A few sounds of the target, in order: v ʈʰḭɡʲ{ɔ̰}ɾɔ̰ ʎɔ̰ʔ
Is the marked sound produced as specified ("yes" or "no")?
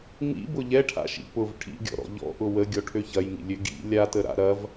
yes